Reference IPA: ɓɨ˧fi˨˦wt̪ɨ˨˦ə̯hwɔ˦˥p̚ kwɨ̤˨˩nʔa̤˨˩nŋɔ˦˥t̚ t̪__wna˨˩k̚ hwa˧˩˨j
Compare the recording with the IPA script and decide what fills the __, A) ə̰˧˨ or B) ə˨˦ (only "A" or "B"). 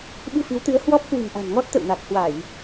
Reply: A